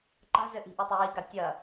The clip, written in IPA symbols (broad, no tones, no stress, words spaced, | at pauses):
ǃa̤zɘʔi̤ ʔutˤɘjiɡa tʲɐ